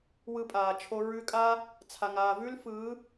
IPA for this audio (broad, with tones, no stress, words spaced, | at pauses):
wɯ˧pʼaː˨t͡ʃʰo˧ ɹʉ˧kʼa˦ | t͡sʰa˨ŋaː˨vʉ˦lfɯː˨˦